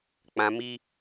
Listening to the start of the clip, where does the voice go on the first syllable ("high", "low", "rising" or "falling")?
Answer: high